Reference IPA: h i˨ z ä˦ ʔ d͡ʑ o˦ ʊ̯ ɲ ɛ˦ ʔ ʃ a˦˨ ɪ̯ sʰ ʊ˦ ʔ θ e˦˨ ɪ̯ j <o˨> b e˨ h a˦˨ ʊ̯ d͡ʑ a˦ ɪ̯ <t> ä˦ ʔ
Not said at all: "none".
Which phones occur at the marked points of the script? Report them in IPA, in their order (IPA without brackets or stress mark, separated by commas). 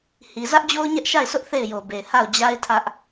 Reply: o˨, tʰ